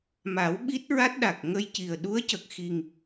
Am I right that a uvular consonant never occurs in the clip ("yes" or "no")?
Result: yes